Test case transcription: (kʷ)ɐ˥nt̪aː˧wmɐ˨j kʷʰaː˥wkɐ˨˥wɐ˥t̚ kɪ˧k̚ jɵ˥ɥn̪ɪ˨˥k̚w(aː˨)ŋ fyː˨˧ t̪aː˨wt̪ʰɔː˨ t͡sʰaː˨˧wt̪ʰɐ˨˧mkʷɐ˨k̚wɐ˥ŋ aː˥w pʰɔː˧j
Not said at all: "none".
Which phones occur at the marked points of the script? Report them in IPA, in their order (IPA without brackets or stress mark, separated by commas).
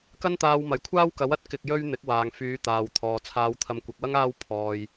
k, aː˨